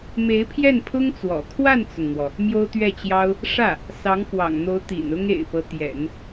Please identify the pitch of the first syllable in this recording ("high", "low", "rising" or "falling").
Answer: rising